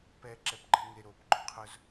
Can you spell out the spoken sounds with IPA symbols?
p ɛ ǁ ɛ p ɡ͡ǃ ɛ ŋ e ɾ o p ɡ͡ǃ ʊ qʰ ʊ z

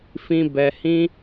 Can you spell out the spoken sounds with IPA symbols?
f ĩ˧ b ɛ˧ h ĩ˦

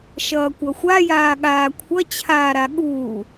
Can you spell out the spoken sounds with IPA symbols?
ʃ ʌː kʷ ʌ xʷ a j aː ɠ aː kʷʰ ʌ t͡ɕʰ aː ɾ a ɠ uː

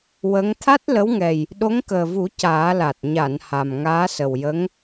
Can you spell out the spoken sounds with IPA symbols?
w ə˧˥ ŋ t̪ʰ a˦˥ t̚ l ə˧˥ w ŋ ɛ˨˩ j | ɗ o˧˥ ŋ k əː˨˩ v u˨˩˦ c aː˨˩˦ l a˨˩ t̚ ɲ a˨˩˨ n h a˨˩ m ŋ aː˧˥ s ə˨˩ w j ə˧˥ ŋ

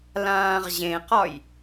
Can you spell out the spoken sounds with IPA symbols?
l ãː ʁ ʑ ẽ q ɒ j

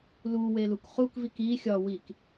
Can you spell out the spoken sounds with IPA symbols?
l u w e l u k χ u k v i k i xʲ ɒ w i k

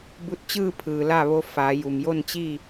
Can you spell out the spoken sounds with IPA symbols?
b u˧ t̚ t͡ɕ ɯː˥˨ pʰ ɯː˩ l a˥˨ ʋ o˧˥ f a˩˧ j u˩ m j o˥˨ n t͡ɕ i˥˨

